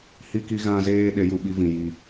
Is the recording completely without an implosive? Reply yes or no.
no